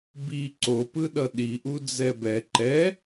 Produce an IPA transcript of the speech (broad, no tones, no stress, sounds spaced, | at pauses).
b i ǀ o p ɯ ɗ ʌ ɗ i ʔ u d͡z ɛ b ɛ ǃ ɛ